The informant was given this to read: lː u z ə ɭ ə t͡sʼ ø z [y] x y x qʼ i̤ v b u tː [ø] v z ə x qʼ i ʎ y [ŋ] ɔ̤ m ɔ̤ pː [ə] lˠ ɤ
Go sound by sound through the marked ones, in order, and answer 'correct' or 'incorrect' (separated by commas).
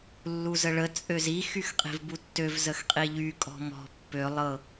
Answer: incorrect, correct, incorrect, incorrect